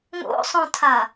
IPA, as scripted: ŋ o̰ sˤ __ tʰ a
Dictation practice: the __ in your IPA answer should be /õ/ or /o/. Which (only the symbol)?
õ